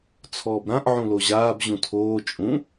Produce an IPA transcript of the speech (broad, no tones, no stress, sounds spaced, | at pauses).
t͡sʰ ɔː b ɾ ã ʔ ʕ ũ l o ʑ aː b ʑ ũ tʰ oː t͡ʃʼ ũ